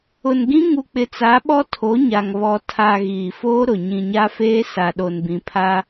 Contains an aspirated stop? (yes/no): yes